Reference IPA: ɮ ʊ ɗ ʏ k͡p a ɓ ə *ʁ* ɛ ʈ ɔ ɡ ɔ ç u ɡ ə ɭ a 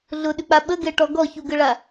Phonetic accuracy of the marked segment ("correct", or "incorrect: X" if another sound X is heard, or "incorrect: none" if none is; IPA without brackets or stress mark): incorrect: ɡ